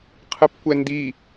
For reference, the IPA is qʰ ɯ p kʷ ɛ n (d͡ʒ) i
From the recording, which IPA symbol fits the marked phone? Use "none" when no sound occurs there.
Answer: d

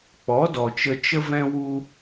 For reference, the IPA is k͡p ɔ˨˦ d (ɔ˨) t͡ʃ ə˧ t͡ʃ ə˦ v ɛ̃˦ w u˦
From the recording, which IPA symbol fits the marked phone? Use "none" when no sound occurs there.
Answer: ɔ˨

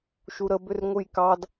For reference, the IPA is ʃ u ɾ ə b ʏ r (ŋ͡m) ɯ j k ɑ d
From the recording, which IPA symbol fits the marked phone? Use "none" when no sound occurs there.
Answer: ŋʷ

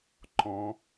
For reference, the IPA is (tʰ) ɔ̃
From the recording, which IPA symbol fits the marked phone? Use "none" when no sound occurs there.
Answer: ǃ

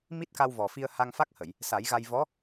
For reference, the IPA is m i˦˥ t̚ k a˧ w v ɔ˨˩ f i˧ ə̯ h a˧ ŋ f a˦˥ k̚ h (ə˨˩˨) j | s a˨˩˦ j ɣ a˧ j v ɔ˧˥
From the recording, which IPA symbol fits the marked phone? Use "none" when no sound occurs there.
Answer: ə˨˩˨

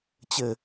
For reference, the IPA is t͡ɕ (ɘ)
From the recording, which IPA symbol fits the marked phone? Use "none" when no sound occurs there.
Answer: ɘ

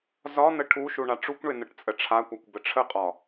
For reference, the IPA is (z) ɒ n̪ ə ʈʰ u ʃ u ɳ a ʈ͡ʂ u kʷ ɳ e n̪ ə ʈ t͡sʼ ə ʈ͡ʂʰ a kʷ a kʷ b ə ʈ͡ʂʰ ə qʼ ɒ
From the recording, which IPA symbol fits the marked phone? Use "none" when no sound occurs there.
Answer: z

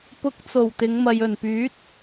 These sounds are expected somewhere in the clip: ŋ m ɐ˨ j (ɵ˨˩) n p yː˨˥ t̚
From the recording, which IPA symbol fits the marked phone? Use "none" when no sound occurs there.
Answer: ɵ˨˩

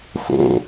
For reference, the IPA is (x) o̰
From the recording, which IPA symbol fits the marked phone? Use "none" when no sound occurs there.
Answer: x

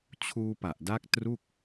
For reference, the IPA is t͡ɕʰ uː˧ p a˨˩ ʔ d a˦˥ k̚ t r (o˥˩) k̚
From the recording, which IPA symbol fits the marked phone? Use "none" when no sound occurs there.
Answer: u˥˩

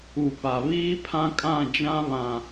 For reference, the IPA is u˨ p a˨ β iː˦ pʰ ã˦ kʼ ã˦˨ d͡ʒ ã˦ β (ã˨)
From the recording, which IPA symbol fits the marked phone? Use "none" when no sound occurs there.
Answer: ã˨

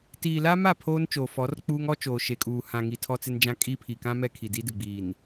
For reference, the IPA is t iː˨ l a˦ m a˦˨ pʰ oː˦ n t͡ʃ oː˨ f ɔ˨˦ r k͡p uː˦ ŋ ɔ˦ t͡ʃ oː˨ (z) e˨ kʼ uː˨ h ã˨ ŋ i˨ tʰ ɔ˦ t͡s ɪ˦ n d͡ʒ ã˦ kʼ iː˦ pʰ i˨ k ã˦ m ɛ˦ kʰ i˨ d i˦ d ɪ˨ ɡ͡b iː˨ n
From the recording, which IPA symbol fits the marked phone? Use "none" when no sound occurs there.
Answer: ʃ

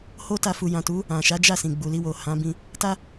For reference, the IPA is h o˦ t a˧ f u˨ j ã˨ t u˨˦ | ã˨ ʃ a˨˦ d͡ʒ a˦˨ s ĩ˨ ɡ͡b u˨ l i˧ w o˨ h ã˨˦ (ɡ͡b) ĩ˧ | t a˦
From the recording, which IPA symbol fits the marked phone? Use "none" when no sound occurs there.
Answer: b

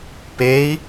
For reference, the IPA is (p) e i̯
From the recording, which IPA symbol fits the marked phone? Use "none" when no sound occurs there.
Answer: p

